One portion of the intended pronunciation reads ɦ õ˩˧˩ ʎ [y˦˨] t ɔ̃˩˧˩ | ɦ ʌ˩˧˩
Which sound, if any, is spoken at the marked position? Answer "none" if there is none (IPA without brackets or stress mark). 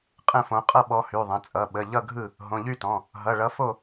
y˦˨